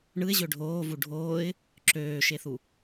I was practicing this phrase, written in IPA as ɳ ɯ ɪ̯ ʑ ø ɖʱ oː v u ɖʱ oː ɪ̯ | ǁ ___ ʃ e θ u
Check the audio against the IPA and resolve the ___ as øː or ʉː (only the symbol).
øː